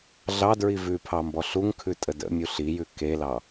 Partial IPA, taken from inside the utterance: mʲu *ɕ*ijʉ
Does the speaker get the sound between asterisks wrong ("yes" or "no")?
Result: yes